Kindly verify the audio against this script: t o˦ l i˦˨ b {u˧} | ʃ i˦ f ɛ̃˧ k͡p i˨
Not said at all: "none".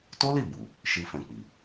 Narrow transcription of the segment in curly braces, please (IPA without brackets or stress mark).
u˨